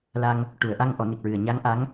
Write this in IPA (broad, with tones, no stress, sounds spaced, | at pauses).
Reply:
l a˧ ŋ | ʈ u˨˩˨ ə̯ ʔ a˧ ŋ ʔ ɔ˨˩˦ n i˨˩ k̚ ɹ ɨ˨˩ ə̯ ɲ a˧˥ ŋ ʔ a˧˥ ŋ